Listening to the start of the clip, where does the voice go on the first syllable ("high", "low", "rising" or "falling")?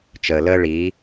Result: low